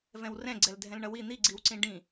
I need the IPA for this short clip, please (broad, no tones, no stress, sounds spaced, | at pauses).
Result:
v ɛ̃ w r ɛ̃ ɡ͡ǀ ɛ l dʱ ɛ̃ l ɳ ʌ w i n̪ i ɡ͡ǀ i w ǀ ĩ ɖ ĩ